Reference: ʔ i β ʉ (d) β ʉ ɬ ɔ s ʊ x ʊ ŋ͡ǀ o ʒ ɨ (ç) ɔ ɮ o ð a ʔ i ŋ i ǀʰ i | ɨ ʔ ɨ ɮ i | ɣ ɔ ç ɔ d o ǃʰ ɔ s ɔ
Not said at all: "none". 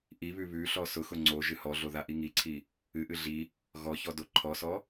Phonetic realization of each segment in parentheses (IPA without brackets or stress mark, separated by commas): none, h